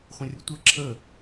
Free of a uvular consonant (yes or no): no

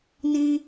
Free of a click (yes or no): yes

